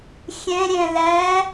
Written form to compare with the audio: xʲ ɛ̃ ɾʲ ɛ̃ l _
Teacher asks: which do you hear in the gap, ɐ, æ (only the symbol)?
æ